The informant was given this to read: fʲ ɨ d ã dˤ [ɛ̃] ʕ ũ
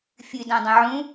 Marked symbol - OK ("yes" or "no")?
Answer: yes